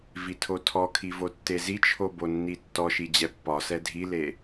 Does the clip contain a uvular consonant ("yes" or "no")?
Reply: no